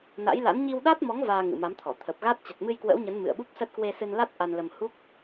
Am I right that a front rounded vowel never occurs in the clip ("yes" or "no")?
yes